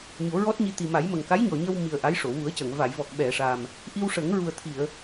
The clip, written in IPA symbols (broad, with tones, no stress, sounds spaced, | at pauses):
ɲ o˨˩˦ ɹ ɔ˦˥ t̚ ɲ i˧ t̪ i˨˩ m a˨˩˦ j m ə˨˩ ŋ k a˧˥ j ɲ ɔ˨˩ ɲ ə˧ w m i˨˩ ə̯ ʔ a˧˥ j ʂ o˨˩˨ w u˨˩˦ ə̯ c ə˨˩˨ ŋ v a˨˩˨ j v ɔ˨˩ k̚ ɓ ɛ˨˩˨ ʂ a˨˩ m | ʔ i˧ w ʂ ə˨˩˦ ŋ ɹ u˨˩ ə̯ t̪ʰ i˨˩˨ ə̯